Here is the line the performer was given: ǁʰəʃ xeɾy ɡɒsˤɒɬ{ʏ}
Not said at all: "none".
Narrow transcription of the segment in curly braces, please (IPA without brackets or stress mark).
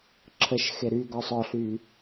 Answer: y